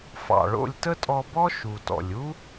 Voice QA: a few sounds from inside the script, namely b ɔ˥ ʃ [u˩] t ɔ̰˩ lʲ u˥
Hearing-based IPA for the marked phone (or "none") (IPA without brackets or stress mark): u˩